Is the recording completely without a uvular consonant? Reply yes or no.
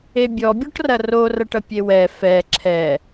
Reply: yes